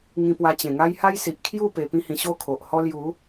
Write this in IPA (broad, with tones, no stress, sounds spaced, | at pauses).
ŋ ĩ˧ p w a˧ t͡ɕ ẽ˨˩ ŋ a˦ j h a˦ j s i˨ ʔ kʰ j u˥˧ p e˨˩ p ĩ˧ h ĩ˨˩ ɕ o˥˧ kʰ o˨ ʔ h ɔ˦ l j u˨˦